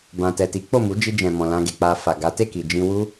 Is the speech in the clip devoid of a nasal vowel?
no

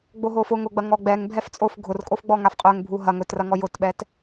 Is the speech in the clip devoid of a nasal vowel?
yes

